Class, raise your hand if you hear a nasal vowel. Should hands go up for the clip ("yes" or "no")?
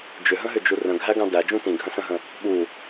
yes